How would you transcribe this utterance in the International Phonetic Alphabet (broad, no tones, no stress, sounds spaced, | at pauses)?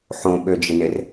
ħ õ ɓ ø d͡ʒ ɪ n ɪ r